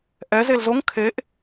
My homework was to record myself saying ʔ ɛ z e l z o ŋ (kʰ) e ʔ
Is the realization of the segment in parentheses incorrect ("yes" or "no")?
no